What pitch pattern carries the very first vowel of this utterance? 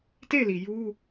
falling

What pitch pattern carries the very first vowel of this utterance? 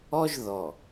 high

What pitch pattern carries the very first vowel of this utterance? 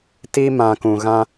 high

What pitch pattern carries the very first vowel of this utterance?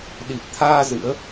low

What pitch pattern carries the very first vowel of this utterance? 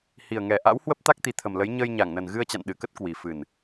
low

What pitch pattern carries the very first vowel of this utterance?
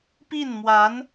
falling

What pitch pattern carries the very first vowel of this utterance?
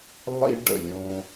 high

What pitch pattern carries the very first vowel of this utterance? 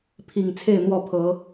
low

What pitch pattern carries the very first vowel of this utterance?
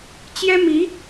high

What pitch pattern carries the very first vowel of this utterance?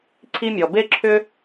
high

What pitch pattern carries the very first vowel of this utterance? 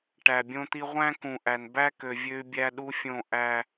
low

